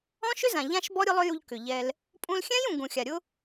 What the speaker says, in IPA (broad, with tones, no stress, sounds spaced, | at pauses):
ɔ̃˦ ʃ ʏ˦ z ã˨ ʎ ã˦ ʃ b ɔ˦ ɾʲ ʊ˦ lˠ ʏ˦ j u˧ ʎ k ʏ˨ ʎ ɛ˧ l | pʼ ũ˧ l xʲ ɛ̃˦ j ũ˨ ɡ ũ˨ xʲ a˨ ɾʲ ʊ˦